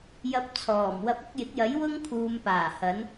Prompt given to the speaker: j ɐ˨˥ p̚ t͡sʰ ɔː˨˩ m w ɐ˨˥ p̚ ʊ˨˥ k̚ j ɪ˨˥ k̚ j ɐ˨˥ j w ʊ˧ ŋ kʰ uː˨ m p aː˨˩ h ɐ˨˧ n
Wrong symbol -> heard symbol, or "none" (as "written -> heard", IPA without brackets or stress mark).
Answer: none